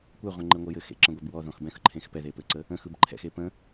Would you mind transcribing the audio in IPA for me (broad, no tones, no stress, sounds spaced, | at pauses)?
kʷ ɛ ʁʷ ẽ ŋ͡ǃ ɘ ŋʷ ə j ɘ x ḛ ǁ ə̃ ɡʷ e b w ɔ ð ɔ̃ x b ɛ̃ x ɯ ǃʰ ẽ x p ɛ ð e p ɘ ǀ ə | ə̃ x ɯ b ǃʰ ɛ̰ x e p ə̃